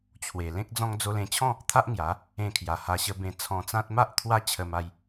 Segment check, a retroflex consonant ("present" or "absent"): absent